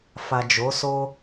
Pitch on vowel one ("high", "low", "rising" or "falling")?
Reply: low